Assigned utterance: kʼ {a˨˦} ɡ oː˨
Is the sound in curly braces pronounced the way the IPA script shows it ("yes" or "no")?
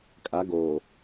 yes